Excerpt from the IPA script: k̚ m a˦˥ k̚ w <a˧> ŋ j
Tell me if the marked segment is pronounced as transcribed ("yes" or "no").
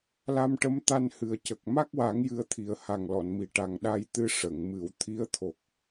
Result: no